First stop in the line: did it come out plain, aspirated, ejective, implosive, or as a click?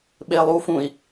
implosive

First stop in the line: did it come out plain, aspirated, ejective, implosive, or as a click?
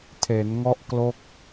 aspirated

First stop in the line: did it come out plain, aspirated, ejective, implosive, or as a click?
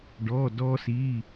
plain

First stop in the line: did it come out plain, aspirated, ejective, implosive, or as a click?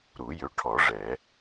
aspirated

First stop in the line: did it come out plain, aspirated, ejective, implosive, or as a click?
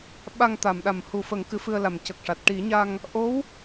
implosive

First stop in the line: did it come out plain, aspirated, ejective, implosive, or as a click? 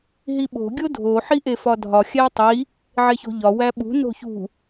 implosive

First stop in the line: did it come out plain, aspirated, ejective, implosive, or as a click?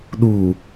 implosive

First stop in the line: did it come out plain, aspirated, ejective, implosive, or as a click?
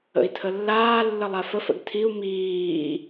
aspirated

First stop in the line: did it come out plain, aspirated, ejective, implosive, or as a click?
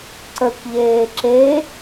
click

